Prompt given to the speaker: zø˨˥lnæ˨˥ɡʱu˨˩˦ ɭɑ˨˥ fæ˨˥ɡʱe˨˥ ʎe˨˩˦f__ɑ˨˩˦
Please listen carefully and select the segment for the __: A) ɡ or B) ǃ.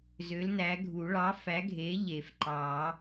B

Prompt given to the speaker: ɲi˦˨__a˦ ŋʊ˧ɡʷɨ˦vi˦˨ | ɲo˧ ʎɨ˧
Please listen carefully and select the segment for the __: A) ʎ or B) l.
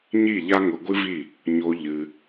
A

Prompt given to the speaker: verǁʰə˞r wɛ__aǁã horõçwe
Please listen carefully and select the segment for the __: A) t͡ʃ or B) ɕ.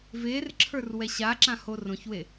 B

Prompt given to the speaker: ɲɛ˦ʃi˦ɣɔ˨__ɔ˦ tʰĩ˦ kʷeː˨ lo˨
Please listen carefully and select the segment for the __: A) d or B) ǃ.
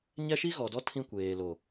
A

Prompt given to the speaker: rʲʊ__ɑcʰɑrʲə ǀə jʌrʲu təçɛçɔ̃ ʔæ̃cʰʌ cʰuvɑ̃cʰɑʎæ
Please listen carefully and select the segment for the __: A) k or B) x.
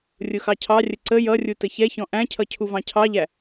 B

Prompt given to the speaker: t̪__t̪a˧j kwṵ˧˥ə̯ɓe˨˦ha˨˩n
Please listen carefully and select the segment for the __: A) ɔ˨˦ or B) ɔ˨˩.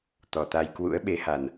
B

